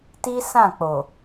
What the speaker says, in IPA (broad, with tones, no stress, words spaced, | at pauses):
ti˦ sã˦˨k͡po˨